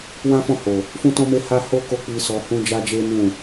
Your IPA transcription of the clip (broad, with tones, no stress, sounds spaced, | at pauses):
w ã˦ f ɔ̃˦˨ h o˨ | f ũ˦ t ɔ̃˦ m e˦ h a˦ h o˦ k o˦˨ k͡p i˧ s ɔ˧ h ũ˦ d͡ʒ a˦ d͡ʒ e˦ n ũ˦˨